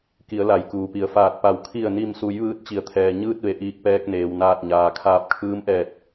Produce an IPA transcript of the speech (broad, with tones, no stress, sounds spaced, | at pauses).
k i˩˧ ə̯ l a˩ j k uː˩ p i˩ ə̯ f aː˧˩ t̚ p a˧˩ w kʰ i˧˩ ə̯ n i˧˩ m s u˩˧ j ʋ ɯː˧˥ t̚ t͡ɕ i˩ ə̯ t̪ʰ ɛː˩ ɲ ɯː˥˨ t̚ ʋ e˩˧ ʔ iː˧ k̚ p ɛː˧ k̚ n eː˩ w n aː˧˩ t̚ ɲ aː˩ kʰ aː˧˩ p̚ kʰ ɯː˧˥ m ʔ ɛː˧˩ t̚